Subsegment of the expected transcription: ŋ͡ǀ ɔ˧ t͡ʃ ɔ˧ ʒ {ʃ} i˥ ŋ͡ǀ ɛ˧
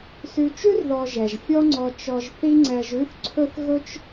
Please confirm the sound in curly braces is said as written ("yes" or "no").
no